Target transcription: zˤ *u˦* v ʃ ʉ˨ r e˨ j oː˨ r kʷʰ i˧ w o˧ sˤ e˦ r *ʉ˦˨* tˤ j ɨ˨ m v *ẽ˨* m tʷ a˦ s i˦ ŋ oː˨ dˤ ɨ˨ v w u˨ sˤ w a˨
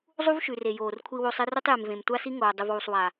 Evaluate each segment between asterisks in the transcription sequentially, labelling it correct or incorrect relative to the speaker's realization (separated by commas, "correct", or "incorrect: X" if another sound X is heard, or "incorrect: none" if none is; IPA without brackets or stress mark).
correct, incorrect: ʉ˦, correct